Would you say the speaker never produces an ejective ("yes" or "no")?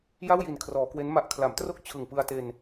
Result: yes